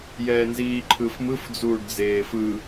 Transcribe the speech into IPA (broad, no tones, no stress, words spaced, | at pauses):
jɛːnziːǃʰɯfmɯf d͡zuːɖd͡zeːfɯ